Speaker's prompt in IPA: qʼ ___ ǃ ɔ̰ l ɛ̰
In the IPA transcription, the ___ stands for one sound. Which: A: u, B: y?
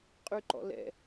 B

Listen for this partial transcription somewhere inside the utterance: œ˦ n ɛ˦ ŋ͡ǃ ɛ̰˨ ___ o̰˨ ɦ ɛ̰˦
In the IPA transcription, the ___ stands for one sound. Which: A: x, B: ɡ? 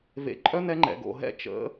B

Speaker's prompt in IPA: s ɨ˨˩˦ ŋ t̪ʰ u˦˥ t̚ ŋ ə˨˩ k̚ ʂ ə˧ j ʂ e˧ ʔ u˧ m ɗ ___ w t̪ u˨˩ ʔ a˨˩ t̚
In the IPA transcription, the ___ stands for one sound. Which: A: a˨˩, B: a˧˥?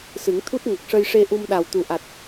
A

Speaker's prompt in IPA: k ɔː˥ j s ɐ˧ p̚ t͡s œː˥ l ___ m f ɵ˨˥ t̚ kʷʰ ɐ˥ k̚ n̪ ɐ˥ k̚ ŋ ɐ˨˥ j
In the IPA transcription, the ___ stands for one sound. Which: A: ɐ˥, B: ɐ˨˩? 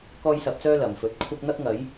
B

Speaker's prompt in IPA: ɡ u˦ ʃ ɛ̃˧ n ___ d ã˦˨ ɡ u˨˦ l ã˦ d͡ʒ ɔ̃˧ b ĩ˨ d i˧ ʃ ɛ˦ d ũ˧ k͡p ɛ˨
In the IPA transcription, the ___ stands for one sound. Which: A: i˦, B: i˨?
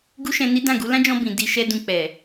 A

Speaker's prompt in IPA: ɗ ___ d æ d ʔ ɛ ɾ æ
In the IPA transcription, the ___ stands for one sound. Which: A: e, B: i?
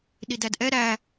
B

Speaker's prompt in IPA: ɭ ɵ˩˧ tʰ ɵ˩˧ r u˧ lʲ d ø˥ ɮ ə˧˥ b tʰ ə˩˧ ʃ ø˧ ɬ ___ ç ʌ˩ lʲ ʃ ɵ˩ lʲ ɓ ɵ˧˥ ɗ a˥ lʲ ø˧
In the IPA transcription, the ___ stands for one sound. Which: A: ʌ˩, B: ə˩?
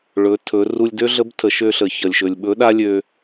B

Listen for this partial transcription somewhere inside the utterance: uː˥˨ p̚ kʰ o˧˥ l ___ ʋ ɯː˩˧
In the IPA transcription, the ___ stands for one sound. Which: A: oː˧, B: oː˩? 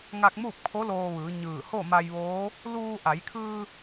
A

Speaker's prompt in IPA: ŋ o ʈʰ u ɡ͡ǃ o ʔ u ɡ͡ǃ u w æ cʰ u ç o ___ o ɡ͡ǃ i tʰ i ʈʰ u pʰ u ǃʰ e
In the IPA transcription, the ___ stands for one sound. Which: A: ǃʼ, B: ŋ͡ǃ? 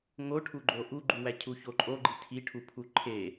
A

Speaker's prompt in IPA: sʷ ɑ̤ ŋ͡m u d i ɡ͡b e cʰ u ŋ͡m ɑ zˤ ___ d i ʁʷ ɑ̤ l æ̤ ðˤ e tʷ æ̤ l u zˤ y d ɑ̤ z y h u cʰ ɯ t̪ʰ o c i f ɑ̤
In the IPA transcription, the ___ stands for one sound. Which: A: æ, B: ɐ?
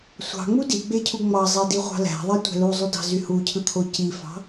A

